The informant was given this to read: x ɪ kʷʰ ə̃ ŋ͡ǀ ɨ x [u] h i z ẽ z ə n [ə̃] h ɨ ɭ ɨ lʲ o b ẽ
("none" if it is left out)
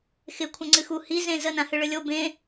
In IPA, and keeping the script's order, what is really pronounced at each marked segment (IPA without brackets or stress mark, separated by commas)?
u, ã